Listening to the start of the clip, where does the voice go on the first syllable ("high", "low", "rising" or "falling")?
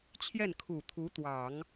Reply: falling